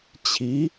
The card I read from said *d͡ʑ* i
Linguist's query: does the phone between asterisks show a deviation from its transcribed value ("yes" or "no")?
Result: yes